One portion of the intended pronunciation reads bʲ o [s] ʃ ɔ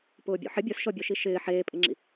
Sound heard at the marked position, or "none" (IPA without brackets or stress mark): s